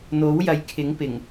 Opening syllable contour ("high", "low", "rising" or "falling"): rising